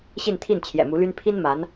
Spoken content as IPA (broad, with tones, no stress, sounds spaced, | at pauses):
ɕ i˥˧ n t̪ʰ i˥˩ n t͡ɕʰ j ɛ̰˨˩ m u˧˥ l y˥ n pʰ i˥ n m a˧˥ n